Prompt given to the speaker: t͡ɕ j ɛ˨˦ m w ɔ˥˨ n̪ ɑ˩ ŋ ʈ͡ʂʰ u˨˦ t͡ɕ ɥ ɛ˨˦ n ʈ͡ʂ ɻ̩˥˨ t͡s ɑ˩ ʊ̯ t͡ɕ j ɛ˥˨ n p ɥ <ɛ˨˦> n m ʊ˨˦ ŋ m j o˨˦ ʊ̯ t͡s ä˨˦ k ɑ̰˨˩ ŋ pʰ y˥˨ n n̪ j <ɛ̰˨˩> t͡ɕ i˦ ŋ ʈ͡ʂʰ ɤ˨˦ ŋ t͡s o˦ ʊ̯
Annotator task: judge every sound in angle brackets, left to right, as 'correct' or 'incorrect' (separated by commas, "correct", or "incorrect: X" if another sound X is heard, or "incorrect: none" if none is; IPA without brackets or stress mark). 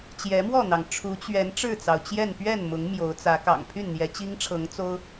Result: incorrect: ɛ˥˨, incorrect: ɛ˨˦